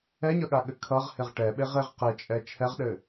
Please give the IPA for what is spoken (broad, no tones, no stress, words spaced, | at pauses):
ɛɲʌɠaɠɘ kʰʌʁhɪʁ ʈɛɓeʁeʁ qɪt͡ʃʼɛ t͡ʃʰɛʁɗɘ